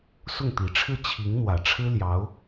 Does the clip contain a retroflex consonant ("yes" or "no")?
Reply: yes